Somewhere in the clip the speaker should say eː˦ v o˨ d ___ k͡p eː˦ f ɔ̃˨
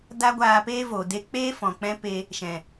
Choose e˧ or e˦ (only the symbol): e˧